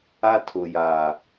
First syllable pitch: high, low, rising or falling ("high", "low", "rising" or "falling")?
high